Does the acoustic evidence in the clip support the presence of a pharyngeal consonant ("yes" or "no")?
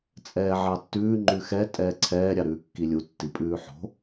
yes